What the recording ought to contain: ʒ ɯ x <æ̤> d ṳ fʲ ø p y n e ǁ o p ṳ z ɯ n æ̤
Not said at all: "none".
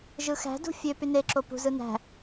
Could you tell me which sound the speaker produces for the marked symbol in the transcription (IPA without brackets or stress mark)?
æ̤